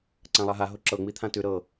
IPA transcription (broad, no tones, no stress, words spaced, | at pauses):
ǀãlˠaɦa ɦoǁɤ ŋ͡mit̪ʰãtʉ ɾɤ